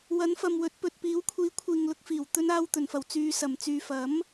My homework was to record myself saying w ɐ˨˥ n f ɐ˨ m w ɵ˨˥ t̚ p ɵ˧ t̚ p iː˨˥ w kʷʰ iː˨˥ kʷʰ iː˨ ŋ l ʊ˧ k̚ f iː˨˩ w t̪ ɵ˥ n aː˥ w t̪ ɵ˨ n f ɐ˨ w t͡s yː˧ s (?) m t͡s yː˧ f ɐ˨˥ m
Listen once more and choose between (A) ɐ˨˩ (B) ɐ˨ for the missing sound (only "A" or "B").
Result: B